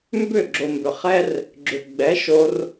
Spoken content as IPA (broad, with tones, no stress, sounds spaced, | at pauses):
m b ʏ˦˨ ɡ͡ǁ o˨ m b ʏ˨ χ ɛ˦ r | ɡ͡ǁ ʏ˨ ɡ͡b ɛ˨˦ ʃ o˧ r